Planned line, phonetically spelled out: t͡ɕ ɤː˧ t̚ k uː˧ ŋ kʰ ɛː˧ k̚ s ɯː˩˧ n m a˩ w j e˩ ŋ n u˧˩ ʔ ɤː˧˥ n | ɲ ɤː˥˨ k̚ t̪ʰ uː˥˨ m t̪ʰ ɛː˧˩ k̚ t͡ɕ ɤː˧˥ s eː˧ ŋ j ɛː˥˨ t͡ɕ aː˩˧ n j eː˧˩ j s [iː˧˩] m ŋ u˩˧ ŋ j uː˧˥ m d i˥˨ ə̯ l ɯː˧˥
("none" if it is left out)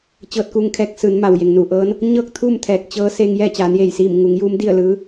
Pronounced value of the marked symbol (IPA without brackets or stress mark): iː˧˩